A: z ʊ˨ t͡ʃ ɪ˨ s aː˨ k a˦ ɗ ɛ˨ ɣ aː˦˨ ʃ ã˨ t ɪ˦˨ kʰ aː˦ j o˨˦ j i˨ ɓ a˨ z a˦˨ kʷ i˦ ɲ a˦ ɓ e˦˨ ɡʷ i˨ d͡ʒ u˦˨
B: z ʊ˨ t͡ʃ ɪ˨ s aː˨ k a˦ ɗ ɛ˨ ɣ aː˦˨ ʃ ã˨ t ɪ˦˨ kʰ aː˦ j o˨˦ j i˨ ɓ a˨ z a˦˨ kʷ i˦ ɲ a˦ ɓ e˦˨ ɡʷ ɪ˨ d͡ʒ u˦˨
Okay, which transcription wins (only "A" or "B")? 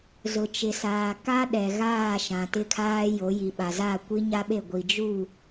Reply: A